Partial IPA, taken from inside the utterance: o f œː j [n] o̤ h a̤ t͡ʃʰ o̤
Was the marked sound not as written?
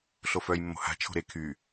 yes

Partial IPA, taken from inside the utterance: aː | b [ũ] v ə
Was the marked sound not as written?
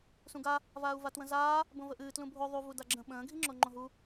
yes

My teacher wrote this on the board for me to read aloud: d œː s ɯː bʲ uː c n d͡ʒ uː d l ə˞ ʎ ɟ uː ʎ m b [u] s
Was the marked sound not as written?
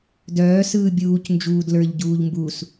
no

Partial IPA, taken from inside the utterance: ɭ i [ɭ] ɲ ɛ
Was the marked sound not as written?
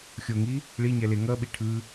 yes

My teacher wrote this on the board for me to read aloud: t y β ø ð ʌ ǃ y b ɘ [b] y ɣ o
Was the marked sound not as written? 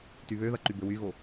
yes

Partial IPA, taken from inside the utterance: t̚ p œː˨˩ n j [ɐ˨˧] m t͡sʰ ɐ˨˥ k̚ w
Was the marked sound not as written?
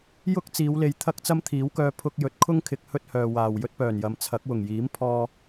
no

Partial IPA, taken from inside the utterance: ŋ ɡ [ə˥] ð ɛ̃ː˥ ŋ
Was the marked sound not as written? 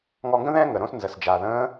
yes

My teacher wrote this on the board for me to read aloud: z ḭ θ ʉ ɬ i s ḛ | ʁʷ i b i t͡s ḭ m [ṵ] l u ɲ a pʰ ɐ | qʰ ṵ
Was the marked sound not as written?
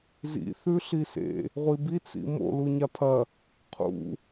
yes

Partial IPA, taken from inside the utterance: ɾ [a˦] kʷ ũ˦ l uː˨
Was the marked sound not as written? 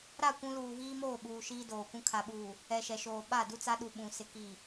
yes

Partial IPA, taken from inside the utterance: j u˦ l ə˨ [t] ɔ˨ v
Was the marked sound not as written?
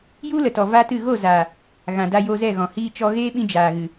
no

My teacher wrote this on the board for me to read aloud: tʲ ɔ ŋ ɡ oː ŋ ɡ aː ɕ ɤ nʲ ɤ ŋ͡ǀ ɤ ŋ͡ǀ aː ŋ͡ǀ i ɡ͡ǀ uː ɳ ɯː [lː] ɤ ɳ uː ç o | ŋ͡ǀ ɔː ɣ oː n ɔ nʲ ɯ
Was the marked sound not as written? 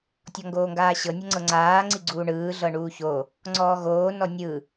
yes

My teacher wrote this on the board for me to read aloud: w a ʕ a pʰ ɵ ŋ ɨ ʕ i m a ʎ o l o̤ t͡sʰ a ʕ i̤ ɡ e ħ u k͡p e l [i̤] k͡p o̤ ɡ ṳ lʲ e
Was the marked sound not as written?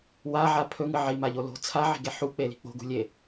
no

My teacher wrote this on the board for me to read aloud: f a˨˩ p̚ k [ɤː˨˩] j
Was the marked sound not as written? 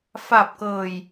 no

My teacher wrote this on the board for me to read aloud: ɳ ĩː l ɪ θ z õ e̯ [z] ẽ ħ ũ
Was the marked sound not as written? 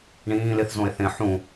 yes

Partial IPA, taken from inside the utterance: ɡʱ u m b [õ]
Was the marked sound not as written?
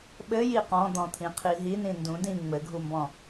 yes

